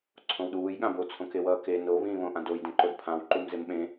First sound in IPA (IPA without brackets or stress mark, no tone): ǀʰ